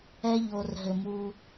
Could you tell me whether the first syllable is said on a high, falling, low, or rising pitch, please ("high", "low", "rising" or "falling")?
high